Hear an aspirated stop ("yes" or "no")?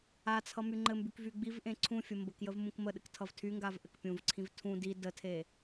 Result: yes